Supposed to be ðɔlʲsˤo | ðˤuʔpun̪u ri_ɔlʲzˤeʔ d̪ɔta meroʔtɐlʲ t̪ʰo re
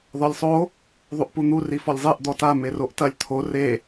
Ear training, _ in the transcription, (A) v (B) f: B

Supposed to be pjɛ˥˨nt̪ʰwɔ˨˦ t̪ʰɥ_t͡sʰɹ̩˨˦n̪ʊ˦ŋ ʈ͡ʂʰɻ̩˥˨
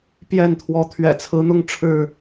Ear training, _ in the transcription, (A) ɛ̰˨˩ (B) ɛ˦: A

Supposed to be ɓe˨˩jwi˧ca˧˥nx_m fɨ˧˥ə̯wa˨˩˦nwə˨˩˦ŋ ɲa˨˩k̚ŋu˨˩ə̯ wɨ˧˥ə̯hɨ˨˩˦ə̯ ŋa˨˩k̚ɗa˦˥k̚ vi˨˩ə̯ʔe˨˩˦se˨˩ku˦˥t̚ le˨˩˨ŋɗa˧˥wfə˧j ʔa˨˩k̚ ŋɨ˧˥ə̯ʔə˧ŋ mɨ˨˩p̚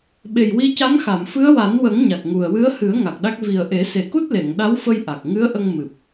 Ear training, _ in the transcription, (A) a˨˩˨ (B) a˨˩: A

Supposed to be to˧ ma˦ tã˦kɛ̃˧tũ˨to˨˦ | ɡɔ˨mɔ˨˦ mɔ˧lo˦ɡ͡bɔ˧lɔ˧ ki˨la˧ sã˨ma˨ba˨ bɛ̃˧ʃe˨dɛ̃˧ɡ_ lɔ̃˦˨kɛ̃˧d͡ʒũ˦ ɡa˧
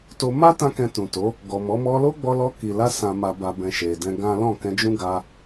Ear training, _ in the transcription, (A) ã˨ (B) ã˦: B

